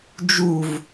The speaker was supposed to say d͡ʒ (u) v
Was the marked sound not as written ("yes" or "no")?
no